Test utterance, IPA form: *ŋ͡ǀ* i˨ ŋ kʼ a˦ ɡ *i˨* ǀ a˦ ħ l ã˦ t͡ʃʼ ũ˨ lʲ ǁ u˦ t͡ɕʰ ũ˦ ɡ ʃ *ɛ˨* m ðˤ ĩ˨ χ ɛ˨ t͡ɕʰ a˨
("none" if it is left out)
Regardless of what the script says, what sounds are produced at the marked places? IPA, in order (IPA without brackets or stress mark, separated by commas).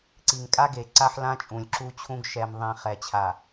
ǀ, e˨, ɛ˨